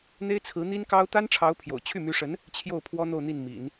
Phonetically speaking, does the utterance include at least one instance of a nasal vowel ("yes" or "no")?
no